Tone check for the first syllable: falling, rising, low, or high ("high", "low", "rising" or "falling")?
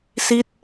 falling